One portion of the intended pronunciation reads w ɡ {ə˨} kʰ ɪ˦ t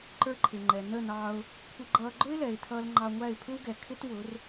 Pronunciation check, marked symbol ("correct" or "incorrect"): incorrect